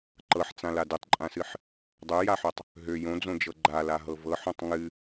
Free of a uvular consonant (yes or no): yes